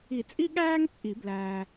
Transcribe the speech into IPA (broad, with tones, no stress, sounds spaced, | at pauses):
i˨˩˦ t͡sʼ i˦ ɠ æː˦ ŋ t͡sʼ i˨˩˦ b l æː˨